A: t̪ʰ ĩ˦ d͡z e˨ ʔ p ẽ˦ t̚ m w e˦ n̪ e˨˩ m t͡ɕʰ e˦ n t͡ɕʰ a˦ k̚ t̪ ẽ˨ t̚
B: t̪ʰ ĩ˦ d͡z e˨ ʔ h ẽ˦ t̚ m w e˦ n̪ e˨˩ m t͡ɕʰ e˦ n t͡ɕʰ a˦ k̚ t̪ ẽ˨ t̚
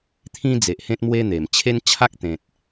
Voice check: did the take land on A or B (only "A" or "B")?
B